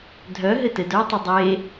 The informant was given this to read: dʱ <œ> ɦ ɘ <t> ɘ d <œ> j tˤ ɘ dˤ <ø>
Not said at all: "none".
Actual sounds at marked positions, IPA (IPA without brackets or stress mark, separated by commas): œ, t, œ, e